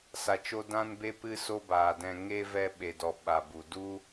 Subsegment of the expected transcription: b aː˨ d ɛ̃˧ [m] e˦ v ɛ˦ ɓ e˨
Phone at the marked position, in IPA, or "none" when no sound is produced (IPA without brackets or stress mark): ŋ